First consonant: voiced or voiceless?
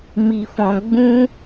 voiced